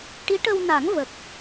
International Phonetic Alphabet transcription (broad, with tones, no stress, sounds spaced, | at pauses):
ʈ i˧˥ ʈ ə˧ w n a˨˩˦ ŋ v ə˨˩ k̚